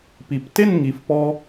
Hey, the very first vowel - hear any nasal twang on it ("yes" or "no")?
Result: no